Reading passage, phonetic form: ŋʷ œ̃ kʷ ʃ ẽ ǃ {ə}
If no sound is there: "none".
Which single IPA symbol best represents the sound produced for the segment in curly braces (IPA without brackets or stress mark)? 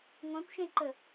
ə